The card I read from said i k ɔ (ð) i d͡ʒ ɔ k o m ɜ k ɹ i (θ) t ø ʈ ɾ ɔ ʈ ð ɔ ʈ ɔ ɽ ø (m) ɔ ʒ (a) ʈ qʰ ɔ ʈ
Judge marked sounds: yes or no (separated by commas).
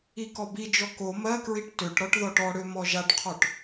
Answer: no, no, yes, yes